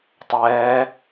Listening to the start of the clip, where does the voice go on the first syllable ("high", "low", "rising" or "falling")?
rising